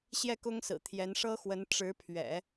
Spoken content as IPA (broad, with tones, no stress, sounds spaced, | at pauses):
ɕ j ɛ˥˩ k ʊ˥ ŋ s ɹ̩˨˩ t̪ʰ j ɛ˧˥ n ʂ ɤ˥ x w ə˧˥ n ʈ͡ʂ ɻ̩˧˥ pʰ ɥ ɛ̰˨˩˦